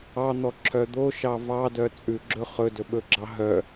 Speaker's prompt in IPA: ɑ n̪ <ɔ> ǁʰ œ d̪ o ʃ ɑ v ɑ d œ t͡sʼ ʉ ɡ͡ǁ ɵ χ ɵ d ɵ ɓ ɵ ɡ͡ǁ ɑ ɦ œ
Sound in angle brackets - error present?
no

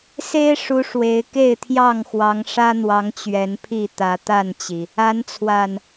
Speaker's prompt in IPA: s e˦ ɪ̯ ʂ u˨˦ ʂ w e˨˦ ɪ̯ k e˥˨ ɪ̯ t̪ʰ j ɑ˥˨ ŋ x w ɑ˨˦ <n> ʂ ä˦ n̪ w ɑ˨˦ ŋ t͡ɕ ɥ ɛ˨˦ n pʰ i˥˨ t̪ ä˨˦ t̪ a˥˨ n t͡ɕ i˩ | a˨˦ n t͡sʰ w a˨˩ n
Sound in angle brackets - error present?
yes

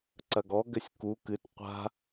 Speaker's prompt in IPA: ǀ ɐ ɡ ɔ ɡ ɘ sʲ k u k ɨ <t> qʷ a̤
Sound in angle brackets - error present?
no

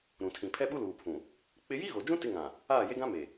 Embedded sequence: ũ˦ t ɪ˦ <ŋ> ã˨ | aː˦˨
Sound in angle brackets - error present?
no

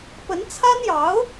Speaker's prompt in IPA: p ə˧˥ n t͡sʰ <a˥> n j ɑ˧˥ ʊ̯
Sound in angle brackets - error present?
no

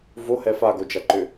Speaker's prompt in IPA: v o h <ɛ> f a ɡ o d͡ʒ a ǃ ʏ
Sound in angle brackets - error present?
no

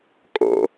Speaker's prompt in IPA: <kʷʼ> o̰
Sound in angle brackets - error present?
yes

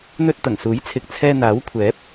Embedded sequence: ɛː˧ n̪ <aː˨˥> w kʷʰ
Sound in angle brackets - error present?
no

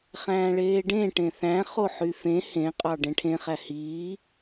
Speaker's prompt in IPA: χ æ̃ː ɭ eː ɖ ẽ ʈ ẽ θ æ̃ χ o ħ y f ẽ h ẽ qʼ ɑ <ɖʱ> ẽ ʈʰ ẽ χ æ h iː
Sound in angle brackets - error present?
yes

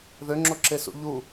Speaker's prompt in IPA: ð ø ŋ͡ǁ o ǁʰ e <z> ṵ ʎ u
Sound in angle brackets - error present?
yes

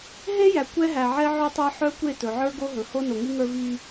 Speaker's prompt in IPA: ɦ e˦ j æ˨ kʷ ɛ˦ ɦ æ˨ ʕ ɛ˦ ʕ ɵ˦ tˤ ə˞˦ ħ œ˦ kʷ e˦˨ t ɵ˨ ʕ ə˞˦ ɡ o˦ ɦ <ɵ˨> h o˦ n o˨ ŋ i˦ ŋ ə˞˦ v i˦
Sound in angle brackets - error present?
no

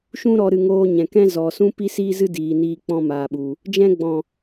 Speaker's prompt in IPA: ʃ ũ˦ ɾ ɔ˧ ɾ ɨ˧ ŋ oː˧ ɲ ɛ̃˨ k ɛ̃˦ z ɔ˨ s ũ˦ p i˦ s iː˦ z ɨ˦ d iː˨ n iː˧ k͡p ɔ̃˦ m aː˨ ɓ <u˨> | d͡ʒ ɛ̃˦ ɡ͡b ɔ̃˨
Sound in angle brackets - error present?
no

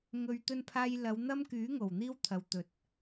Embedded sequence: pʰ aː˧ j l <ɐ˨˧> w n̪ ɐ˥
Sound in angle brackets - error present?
no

